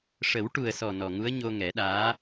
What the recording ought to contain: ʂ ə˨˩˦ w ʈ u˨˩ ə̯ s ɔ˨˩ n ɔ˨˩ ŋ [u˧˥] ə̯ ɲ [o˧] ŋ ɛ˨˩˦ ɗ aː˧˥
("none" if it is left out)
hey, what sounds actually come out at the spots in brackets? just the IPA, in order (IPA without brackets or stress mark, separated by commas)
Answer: u˧˥, o˧